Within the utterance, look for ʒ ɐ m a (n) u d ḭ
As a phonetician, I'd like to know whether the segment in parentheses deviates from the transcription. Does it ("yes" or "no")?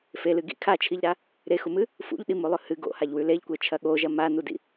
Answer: no